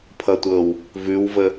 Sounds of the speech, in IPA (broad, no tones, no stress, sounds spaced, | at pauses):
pʰ ʌ tʷ ɤ w | v ʉ w v ə